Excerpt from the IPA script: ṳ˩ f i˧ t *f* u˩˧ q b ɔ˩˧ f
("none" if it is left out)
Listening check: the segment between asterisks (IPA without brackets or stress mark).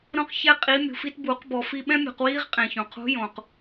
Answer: b